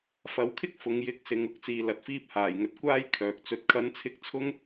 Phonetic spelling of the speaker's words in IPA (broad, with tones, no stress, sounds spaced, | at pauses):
f ɐ˨˧ w kʰ ɪ˥ k̚ f ʊ˨ ŋ j ɪ˨˥ k̚ s ɪ˨ ŋ ʊ˨ k̚ t͡s iː˨ l ɐ˨ t̚ f iː˧ p̚ h aː˨˩ j ŋ ɵ˨ t̚ kʷ aː˥ j kʰ œː˨ k̚ t͡s ɵ˧ t̚ kʰ ɐ˨˥ n t͡sʰ ɪ˧ k̚ t͡sʰ ʊ˥ ŋ